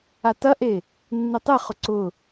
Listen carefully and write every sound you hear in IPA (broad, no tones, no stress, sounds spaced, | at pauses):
a t ɐ ʔ e | nː e tˤ e χ ʊ ǀ ʊ